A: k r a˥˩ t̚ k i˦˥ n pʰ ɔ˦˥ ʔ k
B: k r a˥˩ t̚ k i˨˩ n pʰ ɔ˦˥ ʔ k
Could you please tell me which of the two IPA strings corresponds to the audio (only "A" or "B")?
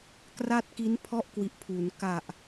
A